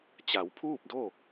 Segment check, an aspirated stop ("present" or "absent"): present